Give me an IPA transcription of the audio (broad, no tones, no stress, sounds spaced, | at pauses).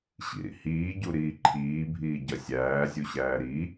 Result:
ɕ ḭ ɾ ḭ h iː ɟ u ɾ iː ǃʰ iː bʱ iː ɟ ɐ sʲ æː zʲ u ɕ æː ɾ i